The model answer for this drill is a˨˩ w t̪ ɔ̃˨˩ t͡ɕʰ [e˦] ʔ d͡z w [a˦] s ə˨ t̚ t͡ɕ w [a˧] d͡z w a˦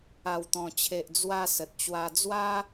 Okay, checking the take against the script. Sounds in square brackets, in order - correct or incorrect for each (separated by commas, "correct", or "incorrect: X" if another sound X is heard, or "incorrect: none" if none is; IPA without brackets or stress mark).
incorrect: e˨, incorrect: a˧, correct